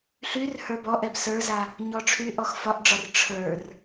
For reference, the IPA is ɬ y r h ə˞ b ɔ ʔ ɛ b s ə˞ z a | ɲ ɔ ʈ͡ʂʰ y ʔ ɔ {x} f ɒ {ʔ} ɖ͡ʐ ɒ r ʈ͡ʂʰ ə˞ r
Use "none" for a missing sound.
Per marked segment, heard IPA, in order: x, ʔ

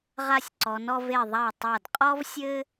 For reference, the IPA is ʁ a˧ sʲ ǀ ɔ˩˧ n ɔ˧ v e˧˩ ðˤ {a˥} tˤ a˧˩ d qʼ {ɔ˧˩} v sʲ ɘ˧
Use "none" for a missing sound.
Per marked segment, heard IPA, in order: a˧˩, ɔ˧

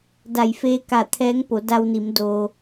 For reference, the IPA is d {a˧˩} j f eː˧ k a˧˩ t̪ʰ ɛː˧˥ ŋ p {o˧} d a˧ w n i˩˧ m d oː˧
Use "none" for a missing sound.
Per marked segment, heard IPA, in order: a˧˩, o˩˧

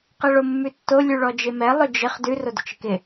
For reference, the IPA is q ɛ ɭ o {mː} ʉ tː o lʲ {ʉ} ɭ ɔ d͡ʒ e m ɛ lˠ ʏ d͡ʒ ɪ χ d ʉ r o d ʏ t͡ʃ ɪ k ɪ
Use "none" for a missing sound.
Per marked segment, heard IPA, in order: mː, ʉ

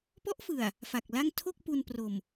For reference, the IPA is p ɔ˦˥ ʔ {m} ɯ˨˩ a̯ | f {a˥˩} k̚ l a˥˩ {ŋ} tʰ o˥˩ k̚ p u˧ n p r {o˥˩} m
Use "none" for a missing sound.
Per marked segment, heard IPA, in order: f, a˨˩, ŋ, o˨˩

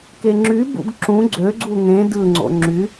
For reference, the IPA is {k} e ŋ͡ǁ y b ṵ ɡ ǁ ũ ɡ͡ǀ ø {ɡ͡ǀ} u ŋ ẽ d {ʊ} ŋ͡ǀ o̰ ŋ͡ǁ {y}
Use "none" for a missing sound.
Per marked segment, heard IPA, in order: k, ɡ͡ǀ, ɯ, y

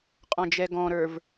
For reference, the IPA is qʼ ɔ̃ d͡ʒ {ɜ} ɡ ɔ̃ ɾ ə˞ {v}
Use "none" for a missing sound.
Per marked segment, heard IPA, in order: ɛ, v

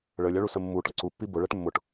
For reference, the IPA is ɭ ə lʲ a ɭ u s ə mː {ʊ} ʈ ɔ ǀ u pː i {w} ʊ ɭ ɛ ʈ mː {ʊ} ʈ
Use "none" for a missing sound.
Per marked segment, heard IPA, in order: u, b, ʊ

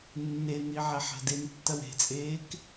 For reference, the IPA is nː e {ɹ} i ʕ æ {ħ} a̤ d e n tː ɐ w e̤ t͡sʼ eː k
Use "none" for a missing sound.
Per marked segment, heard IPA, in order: n̪, ħ

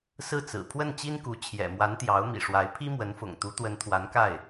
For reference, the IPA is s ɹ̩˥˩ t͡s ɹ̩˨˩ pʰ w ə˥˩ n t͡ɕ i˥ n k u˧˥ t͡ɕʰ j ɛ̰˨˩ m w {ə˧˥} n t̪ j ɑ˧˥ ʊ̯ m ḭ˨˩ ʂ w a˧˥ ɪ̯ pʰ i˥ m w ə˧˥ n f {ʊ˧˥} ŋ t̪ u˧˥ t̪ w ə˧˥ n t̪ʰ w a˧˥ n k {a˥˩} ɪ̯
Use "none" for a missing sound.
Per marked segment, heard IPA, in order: a˧˥, ʊ̰˨˩, a˥˩

